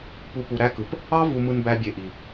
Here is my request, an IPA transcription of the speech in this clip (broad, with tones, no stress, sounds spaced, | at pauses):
p u˧ p u˨ ɾ æ˦ k ɯ˨ p | ɑ˦ v u˨ m ɯ˧ n b æ˧ bʲ e˨ ʔ i˨